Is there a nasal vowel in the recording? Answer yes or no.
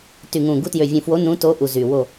yes